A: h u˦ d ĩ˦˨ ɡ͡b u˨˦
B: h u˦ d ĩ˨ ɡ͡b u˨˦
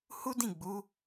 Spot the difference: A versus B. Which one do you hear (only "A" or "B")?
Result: A